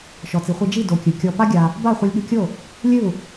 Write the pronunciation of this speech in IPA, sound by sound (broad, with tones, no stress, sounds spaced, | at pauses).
ʃ ɔ˩ t͡s i˩ χʷ i˧ d͡ʒ i˥˩ d o˩˥ kʲ ɨ˩ kʲ ɔ˧ p a˥ ɡʲ a˧ | b a˥˩ χʷ ɐ˧ lʲ ɠ ɨ˧ kʲ o˥˩ | lʲ ɨ˥˩ u̯